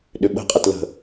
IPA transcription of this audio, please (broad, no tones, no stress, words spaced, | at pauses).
ɗʏɓə̤qʼɛt lə̤